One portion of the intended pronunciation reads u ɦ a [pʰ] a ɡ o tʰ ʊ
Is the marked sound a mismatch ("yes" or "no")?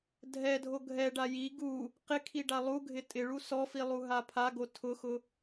no